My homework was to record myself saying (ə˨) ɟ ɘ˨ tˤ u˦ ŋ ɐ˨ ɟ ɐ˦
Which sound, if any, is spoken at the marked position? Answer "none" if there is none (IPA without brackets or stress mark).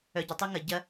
œ˨